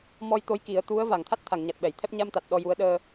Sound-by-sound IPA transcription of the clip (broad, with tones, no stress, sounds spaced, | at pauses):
m ɔ˧ j t̪ o˧˥ j k i˨˩˦ ə̯ t̪ u˧˥ ə̯ v a˨˩˨ ŋ t̪ʰ a˦˥ t̚ t̪ʰ a˨˩˨ ŋ ɲ a˨˩ t̚ ɓ ɛ˨˩˨ j t̪ʰ ɛ˦˥ p̚ ɲ a˧ m t̪ a˨˩ t̚ ɗ ɔ˧ j u˧˥ ə̯ ɗ əː˧